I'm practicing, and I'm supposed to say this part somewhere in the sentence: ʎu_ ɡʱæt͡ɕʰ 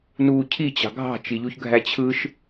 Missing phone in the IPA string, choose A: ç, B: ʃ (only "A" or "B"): A